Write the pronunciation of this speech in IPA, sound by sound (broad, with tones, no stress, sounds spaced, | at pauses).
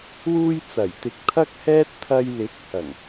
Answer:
w uː˧ j t͡s ɐ˨˩ j t̪ ɪ˨˥ k̚ t̪ʰ ɐ˥ k̚ h ɛː˥ t̚ t̪ʰ ɐ˧ j l ɪ˨˥ k̚ h ɐ˨˩ ŋ